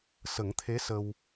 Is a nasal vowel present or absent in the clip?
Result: absent